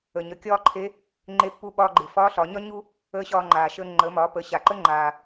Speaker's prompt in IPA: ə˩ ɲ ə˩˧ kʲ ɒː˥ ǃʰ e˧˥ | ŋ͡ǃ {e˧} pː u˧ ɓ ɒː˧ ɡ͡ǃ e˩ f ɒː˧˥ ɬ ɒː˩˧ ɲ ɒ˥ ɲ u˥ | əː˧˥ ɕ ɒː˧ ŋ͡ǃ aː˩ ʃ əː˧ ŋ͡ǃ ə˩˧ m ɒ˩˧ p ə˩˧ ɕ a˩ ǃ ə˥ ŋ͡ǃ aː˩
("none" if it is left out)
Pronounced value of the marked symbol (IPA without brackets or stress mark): e˧